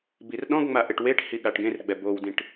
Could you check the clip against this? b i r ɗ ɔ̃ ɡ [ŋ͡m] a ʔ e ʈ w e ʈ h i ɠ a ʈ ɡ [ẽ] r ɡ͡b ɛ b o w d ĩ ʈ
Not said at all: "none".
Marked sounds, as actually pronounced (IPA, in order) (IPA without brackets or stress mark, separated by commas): ŋ͡m, ẽ